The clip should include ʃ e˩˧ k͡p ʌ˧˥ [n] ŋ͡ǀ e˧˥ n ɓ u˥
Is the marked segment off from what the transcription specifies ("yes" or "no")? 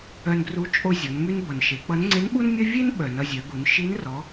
no